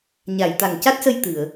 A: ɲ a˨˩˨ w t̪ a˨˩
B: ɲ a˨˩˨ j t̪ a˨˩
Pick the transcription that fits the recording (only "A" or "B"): B